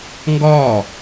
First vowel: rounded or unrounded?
rounded